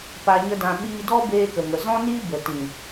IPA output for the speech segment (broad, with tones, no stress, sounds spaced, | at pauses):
p a˧ ɲ ə˦ d ã˧ ɓ iː˧ d ɔ˦ b eː˧ k ə˨ ŋ ə˨ z ɔ̃˦ n iː˦ b ə˨ t ĩ˨